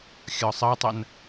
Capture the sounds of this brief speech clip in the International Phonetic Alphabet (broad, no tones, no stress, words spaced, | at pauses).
xʲɒsˤɜtˤɜn